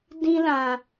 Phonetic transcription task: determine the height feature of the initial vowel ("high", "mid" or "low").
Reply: high